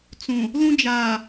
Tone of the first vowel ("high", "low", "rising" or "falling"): low